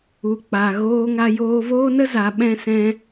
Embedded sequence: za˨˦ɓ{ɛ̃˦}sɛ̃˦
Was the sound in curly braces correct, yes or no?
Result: yes